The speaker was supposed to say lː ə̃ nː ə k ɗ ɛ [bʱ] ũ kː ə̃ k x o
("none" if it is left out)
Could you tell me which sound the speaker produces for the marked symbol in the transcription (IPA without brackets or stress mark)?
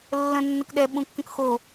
ɓ